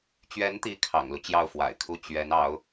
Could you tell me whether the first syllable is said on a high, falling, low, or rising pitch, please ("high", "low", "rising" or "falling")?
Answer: rising